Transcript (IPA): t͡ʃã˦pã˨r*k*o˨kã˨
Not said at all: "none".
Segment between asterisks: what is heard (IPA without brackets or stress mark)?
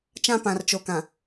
t͡ʃ